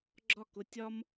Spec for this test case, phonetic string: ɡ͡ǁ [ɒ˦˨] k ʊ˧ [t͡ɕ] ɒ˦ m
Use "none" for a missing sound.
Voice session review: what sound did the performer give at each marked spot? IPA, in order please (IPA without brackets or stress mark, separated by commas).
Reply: ɒ˦˨, tʲ